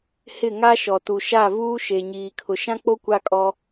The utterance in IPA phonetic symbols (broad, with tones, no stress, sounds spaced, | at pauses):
h ɪ˦˨ ŋ a˦ ʃ ɔ˨ t u˨ ʃ a˦˨ v uː˦ ʃ e˨ ɲ iː˨ kʰ ʊ˨ ʃ ã˦ k͡p o˦ kʷ a˦ kʼ ɔ˦